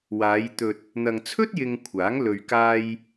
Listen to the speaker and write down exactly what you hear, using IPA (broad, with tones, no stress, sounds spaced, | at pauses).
w aː˨˧ j t̪ ɵ˨ t̚ | n̪ ɐ˨ ŋ t͡sʰ ɵ˥ t̚ j ɪ˧ ŋ kʷʰ aː˨˥ ŋ l ɵ˨ ɥ k aː˧ j